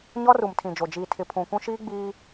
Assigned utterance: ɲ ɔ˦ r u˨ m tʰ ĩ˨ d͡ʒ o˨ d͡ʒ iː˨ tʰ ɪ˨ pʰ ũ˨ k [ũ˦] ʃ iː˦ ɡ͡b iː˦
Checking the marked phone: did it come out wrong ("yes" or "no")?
no